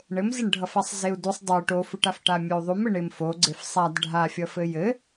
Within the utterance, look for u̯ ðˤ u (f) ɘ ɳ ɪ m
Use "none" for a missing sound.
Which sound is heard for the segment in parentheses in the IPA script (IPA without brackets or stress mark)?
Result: m